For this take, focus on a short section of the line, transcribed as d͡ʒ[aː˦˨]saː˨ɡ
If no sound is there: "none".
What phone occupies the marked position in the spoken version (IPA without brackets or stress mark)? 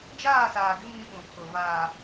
aː˦˨